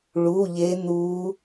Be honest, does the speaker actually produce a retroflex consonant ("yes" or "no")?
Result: yes